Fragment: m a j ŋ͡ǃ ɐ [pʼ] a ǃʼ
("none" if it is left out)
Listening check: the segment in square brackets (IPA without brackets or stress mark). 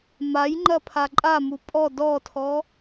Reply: pʰ